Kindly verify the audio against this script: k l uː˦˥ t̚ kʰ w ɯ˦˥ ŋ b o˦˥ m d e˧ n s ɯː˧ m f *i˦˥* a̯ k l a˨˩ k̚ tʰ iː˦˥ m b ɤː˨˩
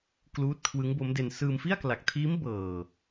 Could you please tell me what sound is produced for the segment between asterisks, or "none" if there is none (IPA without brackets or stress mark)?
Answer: i˥˩